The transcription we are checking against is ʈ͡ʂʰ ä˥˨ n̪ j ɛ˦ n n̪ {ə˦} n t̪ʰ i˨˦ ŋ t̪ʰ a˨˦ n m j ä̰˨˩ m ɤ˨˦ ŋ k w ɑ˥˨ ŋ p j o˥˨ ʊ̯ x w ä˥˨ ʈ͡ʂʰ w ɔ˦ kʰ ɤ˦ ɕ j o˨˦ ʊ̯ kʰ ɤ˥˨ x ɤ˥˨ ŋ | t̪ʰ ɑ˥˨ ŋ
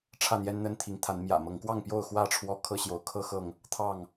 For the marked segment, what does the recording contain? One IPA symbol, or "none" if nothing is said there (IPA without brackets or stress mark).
ə˦